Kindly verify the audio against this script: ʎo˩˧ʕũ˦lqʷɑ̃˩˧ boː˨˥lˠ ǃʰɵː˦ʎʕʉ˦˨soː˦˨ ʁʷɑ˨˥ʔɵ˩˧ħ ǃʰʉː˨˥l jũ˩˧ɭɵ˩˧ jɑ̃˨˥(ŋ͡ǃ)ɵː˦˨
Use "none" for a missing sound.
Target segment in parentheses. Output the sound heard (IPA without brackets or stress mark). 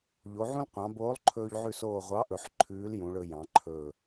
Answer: ǃʰ